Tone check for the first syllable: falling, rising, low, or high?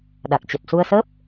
low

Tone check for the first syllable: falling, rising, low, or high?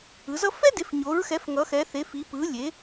rising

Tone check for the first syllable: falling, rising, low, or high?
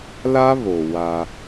high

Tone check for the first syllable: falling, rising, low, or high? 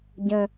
low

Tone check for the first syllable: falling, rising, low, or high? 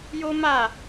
high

